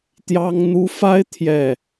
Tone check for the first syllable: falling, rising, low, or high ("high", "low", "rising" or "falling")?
high